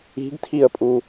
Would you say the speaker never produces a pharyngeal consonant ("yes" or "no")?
yes